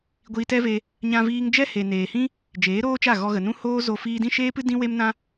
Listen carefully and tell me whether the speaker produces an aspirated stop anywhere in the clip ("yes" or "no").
no